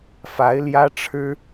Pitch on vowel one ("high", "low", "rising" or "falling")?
rising